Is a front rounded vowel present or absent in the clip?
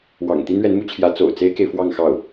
absent